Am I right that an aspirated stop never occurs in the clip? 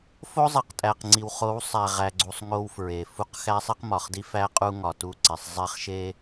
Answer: yes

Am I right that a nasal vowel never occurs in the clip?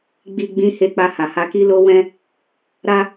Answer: no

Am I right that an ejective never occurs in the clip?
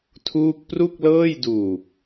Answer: yes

